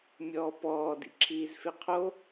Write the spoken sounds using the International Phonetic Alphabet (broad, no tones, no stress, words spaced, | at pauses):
mʲɔːpɔː dḭǁʰiːzfeqʰo